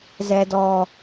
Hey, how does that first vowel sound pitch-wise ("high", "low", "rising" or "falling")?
low